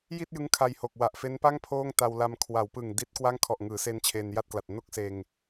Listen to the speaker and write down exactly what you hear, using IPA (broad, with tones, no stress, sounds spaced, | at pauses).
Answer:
j i˥˩ t̚ j ɯ˦˥ ŋ kʰ a˧ j h o˨˩ k̚ w a˨˩ ʔ f e˦˥ n p a˥˩ ŋ pʰ oː˥˩ ŋ t a˧ w l a˧ m kʰ w a˩˦ w p ɯ˨˩ ŋ d i˦˥ t̚ k w a˥˩ ŋ kʰ ɔ˨˩ ʔ ŋ ɯː˩˦ s e˧ n t͡ɕʰ eː˧ n j a˥˩ t̚ k l a˨˩ t̚ n o˥˩ k̚ s eː˧ ŋ